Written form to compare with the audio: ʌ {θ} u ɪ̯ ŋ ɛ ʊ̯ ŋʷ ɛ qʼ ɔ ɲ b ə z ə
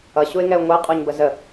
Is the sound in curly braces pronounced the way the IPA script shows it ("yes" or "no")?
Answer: no